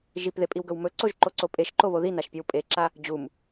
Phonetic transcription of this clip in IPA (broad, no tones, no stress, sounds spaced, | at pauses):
ʒ i p ð e pʼ i w ɡ ɵ w m ɵ ǀ o ʒ ǃ o ǀ o pʼ e ʃ ǃ o β o ð i n a ʃ pʲ e w pʼ e ǁ a | d͡ʑ u m